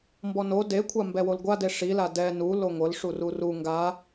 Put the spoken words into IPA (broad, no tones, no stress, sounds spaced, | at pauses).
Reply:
m b ɔ n o d e kʷʰ a m b ɛ w o l ɡʷ a d e ʂ i l a d ɛ n u l o ŋʷ ɤ l ʂ u r u r u ŋ ɡ a